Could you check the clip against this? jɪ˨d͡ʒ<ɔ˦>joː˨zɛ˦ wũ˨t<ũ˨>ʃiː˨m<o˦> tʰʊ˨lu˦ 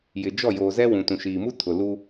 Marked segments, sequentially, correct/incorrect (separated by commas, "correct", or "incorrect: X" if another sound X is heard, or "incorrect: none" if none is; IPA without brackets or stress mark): incorrect: ɔ˦˨, correct, incorrect: u˦